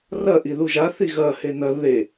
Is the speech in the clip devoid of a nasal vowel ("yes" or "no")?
yes